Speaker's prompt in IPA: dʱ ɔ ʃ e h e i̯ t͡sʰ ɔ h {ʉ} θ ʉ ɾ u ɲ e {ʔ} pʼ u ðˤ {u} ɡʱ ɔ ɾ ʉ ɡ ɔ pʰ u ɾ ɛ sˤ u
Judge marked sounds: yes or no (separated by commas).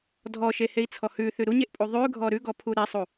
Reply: yes, yes, no